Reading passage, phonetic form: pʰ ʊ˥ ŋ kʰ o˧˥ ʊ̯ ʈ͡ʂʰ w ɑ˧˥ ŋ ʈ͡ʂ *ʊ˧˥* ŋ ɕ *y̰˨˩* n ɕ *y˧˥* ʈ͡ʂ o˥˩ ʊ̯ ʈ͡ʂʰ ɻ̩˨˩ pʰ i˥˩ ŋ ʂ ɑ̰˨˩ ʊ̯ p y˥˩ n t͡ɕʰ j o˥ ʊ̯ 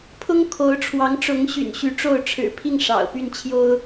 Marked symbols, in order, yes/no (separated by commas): yes, yes, yes